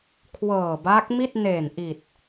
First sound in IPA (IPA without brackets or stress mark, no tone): kʰ